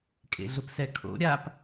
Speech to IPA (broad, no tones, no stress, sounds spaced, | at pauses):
kʼ ḛ ɮ ʊ p s ɛ kʰ o̰ ɾʲ a p